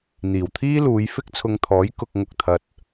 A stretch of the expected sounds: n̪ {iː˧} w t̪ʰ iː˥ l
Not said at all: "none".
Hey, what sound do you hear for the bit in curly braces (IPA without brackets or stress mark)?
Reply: iː˨˩